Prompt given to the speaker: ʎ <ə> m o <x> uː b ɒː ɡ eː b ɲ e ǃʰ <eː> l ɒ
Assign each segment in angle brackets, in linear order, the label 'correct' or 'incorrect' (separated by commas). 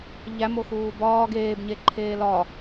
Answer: incorrect, correct, correct